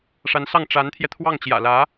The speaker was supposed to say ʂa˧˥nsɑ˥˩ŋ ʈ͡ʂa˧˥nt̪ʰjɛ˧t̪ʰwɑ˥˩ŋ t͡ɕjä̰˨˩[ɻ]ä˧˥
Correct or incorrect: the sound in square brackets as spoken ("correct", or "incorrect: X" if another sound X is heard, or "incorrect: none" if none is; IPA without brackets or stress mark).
incorrect: l